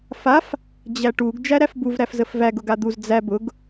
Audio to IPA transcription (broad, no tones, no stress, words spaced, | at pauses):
faf | d͡ʑæʈuɡ d͡ʒæɾæfbuv ɾæfzəfvæɡ ʊɡad̪uz d͡zæ bʊɡ